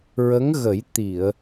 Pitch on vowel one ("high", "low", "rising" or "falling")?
rising